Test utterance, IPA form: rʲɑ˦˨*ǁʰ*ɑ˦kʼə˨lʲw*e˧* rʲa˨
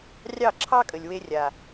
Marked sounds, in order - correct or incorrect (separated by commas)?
correct, correct